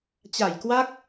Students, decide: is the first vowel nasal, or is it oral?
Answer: oral